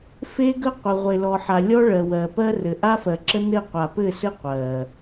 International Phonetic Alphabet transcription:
f e˦ ɡ ə˦ qʷ ə˨ ʁʷ e˨ l ɔ˨ ħ a˨ lʲ ɔ˦ ɭ ɜ˨ w ɜ˨ p ɜ˦ r ɘ˨ ʔ a˦ f ɜ˨ ǁ ə˦ n ɘ˦˨ qʷ a˨ p ɘ˦˨ s ɘ˦ qʷ ɜ˨

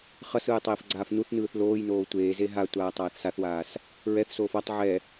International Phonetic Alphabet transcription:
χ ʌ s ɯː tˤ eː f ɡ͡ǀ aː f n u θ n ɯː θ l oː j n oː tʷ eː z e ɦ a tʷ aː tˤ aː θ s a θ w aː s | ɹ ɛ θ s oː f a tˤ ʕ ɛ

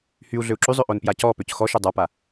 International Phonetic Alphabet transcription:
h y u̯ ɮ ø u̯ ǁ y zˤ ø ʔ o n p j a c ɔ p ø c x ɔ ʃ ʊ dˤ a p a

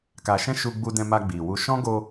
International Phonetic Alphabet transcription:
k a˨ ʃ ɛ̃˧ ʃ u˧ ɡ͡b u˧ d ɛ̃˧ m a˧ ɡ͡b i˨ w u˧ ʃ ɔ̃˦ ɡ o˧

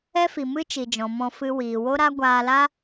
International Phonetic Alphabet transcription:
ɛ˦ f i˨ m ɨ˦ t͡ʃ i˨ d͡ʒ ɔ̃˨ m ɔ̃˧ f ɨ˧ w iː˨ w o˦ ɾ a˦ ɡʷ aː˧ l a˦

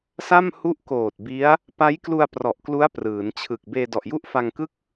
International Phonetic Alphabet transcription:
s a˥˩ m h u˥˩ ʔ k oː˨˩ t̚ b i˦˥ a̯ | p a˦˥ j k l u˧ a̯ p r ɔ˨˩ ʔ k l u˦˥ a̯ p r ɯː˩˦ n t͡ɕʰ ɯ˨˩ k̚ b eː˧ d ɔ˨˩ ʔ j u˥˩ ʔ f a˧ ŋ k ɯ˥˩ k̚

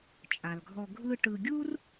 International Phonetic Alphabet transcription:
t͡ʃʼ a˨ l ɡʱ ɔ˧ ɡʱ ɯ˦ ʈ ɯ˧ ɡʲ u˦ r

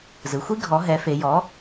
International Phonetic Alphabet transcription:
z ɯ˩˧ xʷ i˥ ɡʱ ɔ˩˥ ɦ ɛ˩˥ f e˩˧ j ɔ˩˥

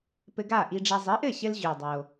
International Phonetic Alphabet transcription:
p ɘ˧ ɡ a˥˩ ʔ i˧ ɖ͡ʐ a˧ zˤ i˩˥ ʔ ɘ˥˩ ɕ ɘ˧ l ʑ ø˩ dˤ o˩

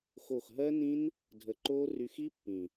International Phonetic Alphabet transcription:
x o˦˨ x ɦ ɜ˦ n ĩ˦ n | dʱ ə˨ ǃ oː˦ r y˧ x i˦ pː ĩ˨

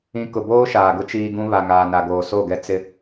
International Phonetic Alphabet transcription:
ĩ˦ k ʊ˦ b oː˦ ʃ aː˨ ɡ ʊ˦ t͡ʃ iː˦ ɡ ũ˦ β a˨ ŋ aː˨ n a˨ ɡ oː˨ s o˦˨ ɡ ɛ˦ t͡s ɪ˦

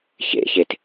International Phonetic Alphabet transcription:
ç ḛ ç e t

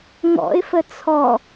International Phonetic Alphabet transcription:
ŋ ɔ̰ ɪ̯ f ə t͡sʰ ɔ

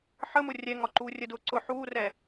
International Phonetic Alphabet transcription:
ħ əː m ʊː rʲ ɛ ŋ ɒ ǃ uː rʲ ə d ʊː ǀ ʊ ħ uː r ɛː

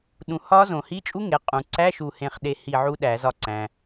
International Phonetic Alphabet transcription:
ɗ ũ˨ h ɒ˦˥ z õ˨˩˦ h i˧˥˧ t͡ʃʼ u˦˥ ŋ e˩˥ qʼ ũ˨ ǀ æ˧˥˧ ʃ u˦˨ h ẽ˦˨ χ ɗ e˦˨ h i˦˨ ʕ u˦˥ ɗ æ˨˩˦ z ɒ˦˨ ǀ æ̃˨

